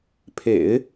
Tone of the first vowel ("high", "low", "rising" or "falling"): low